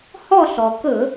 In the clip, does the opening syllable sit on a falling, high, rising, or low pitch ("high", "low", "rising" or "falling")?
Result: falling